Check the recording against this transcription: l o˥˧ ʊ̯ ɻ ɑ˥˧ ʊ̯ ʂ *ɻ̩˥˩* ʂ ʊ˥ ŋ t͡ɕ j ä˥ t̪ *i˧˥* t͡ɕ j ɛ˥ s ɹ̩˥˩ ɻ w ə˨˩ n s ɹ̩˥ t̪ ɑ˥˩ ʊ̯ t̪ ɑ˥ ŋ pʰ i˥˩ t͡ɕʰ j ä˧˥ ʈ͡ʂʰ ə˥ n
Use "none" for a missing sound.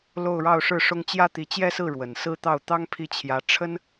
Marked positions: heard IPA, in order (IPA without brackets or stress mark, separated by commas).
ɻ̩˥˩, i˧˥